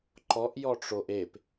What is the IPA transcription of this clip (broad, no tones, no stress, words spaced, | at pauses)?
ǃɔʔ jɔʈ͡ʂoʔep